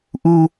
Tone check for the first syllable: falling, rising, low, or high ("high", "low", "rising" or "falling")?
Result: high